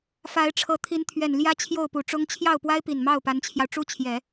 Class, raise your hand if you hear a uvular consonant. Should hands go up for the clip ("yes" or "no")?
no